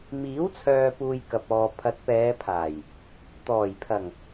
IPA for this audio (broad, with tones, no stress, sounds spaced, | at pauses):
m iː˨˥ w t͡sʰ œː˨ p uː˧ j k ɐ˨ p̚ ɔː˨ pʰ ɐ˨˥ t̚ p ɛː˨˧ pʰ aː˨˩ j | t̪ ɔː˨˩ j pʰ ɐ˨˩ ŋ